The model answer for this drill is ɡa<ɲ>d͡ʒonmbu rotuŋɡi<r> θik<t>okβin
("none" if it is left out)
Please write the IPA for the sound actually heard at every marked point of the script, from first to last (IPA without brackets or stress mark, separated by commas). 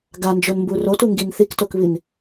n, n, t